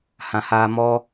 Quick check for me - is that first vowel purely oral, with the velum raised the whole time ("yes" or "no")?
no